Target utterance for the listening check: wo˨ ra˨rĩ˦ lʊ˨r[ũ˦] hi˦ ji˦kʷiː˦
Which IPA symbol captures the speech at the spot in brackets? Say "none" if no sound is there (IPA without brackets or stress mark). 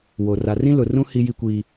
ũ˦